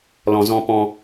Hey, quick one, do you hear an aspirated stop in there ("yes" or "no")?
no